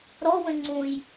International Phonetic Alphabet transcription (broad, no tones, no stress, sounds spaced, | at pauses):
ɾ ɔ w ə̃ ŋ͡ǀ ũ j